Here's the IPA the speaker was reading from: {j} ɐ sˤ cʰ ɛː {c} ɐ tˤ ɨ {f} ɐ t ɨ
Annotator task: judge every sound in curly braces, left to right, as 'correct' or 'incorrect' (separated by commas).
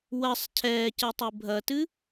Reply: incorrect, correct, incorrect